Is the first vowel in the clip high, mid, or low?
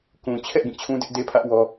high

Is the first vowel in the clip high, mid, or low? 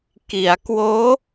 high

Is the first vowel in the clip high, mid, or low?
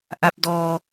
low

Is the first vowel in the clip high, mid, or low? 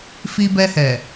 high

